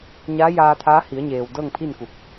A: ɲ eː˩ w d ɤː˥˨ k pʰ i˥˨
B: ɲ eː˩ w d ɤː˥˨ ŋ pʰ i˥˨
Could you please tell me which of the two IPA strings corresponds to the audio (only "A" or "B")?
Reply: B